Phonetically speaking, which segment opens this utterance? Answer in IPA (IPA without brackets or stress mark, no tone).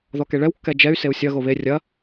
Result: ð